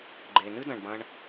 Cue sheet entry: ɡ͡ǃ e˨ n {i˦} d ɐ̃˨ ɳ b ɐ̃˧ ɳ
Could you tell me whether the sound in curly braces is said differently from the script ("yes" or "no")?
yes